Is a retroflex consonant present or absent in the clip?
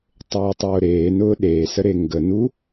absent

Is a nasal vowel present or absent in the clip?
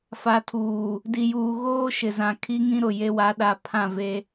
present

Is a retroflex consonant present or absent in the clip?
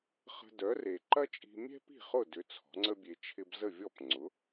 absent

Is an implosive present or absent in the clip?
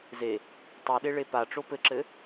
present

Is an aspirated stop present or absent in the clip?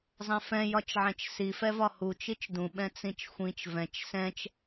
absent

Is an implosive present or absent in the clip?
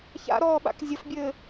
present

